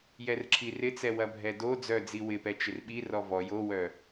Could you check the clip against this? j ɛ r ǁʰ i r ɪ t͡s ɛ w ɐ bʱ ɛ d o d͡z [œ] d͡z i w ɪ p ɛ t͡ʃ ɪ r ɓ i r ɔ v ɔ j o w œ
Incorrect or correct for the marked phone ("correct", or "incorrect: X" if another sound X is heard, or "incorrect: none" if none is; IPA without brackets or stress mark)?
correct